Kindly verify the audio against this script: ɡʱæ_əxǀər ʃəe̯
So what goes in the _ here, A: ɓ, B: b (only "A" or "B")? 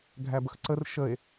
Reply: B